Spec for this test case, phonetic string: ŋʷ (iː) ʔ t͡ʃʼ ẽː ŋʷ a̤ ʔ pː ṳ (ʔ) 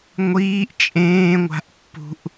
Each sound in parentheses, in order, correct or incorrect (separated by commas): correct, correct